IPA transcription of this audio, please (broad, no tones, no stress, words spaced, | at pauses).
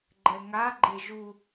ɡ͡ǃɛŋa ɡ͡ǃeʒu